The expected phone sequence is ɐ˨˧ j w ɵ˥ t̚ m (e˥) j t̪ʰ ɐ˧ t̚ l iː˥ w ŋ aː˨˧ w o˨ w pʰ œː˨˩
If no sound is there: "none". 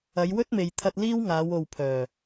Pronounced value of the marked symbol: e˨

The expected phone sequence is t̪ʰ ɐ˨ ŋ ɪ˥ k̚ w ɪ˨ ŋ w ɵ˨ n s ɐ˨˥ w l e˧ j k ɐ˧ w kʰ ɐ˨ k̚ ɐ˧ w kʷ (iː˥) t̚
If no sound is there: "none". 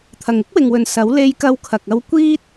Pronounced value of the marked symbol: iː˥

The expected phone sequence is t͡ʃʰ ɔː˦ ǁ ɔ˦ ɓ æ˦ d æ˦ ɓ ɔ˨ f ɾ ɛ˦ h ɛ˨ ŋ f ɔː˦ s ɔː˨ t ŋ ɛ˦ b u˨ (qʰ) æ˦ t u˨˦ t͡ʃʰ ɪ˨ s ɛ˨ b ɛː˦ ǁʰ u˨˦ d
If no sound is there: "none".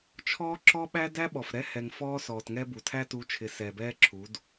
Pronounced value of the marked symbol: tʰ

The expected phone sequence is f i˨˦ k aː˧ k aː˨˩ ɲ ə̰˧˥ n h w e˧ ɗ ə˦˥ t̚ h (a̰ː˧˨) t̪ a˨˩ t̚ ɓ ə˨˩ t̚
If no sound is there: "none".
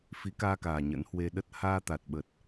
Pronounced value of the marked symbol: aː˧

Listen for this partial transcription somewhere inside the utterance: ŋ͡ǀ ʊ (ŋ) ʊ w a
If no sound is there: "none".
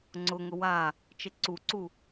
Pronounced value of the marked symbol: ŋ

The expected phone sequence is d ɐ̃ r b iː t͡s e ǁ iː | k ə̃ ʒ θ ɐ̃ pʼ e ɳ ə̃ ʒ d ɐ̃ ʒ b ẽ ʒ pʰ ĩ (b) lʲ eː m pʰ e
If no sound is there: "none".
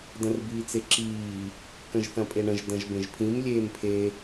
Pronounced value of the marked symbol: m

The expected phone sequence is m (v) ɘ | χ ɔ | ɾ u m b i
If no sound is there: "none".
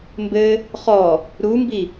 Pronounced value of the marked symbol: b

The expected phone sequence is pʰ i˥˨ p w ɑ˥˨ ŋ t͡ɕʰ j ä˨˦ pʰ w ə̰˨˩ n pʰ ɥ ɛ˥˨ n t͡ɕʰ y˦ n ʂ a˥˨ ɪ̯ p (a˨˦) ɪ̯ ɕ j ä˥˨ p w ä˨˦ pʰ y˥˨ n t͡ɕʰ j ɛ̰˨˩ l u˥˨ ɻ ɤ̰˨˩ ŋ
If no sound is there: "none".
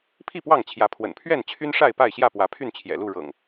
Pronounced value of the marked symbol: a˥˨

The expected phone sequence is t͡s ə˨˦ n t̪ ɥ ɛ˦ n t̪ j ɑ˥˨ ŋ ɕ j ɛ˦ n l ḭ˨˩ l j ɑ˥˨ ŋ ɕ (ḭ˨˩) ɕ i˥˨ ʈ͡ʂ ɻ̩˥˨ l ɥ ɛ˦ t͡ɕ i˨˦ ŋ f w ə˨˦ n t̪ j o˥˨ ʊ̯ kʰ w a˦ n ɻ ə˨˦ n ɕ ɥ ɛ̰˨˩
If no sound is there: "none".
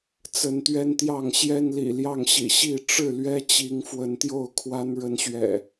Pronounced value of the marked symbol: ḭ˨˩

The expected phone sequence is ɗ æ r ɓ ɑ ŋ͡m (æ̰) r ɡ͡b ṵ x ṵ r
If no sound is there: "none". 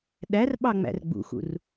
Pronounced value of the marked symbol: æ̰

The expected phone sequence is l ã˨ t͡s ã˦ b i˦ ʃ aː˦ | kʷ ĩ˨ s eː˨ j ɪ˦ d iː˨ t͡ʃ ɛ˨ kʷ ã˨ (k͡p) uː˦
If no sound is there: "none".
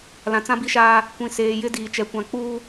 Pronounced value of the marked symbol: k͡p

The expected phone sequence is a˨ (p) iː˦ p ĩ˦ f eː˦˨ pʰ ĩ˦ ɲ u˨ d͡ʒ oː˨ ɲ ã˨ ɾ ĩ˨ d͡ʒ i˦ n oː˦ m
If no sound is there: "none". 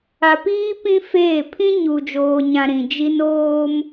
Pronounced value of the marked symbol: p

